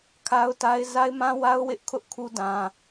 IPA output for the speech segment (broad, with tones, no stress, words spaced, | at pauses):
kʰa˦ʊ̯ta˦ɪ̯ za˦ɪ̯mã˦wa˦ʊ̯ wɪ˦ʔkʰʊ˦ʔkʰu˦ dã˦